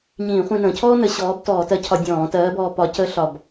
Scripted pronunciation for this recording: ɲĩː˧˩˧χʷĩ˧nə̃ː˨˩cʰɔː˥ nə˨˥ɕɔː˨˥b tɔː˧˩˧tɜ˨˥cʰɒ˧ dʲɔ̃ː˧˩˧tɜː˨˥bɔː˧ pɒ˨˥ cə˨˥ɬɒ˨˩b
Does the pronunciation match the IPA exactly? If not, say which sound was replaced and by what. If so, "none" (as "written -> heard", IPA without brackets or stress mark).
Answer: none